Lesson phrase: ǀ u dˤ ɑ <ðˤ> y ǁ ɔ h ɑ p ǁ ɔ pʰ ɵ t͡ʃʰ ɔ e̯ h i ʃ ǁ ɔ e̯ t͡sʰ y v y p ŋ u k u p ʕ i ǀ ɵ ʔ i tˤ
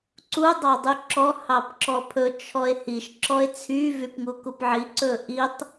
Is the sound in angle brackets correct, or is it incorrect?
incorrect